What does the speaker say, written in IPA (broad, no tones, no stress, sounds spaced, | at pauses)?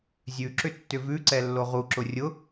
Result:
zʲ ʉ ǁ ʏ tː ʏ v ʉ ǀ ɛ lː o ʁ u ǁ ʊ rʲ ʊ